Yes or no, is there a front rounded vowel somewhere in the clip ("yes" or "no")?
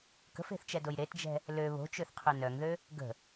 yes